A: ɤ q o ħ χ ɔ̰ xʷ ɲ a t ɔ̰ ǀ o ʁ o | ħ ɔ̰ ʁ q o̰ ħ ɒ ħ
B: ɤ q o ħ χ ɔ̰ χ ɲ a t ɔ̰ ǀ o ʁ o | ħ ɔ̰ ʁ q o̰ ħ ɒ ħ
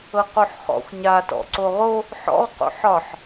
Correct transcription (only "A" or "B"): A